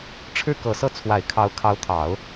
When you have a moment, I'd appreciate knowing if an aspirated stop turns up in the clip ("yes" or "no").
yes